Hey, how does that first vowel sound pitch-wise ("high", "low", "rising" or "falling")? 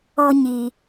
high